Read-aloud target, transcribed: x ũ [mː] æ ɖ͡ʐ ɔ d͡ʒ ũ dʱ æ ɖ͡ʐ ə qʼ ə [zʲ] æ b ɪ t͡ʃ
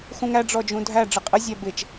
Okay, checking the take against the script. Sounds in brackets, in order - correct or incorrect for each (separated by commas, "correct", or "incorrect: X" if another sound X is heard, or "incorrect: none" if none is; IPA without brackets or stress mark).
incorrect: ŋ, correct